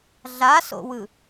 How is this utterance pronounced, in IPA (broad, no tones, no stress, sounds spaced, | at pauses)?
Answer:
ɮ a s o̰ w ɯ